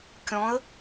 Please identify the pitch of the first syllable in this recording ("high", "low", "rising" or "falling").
rising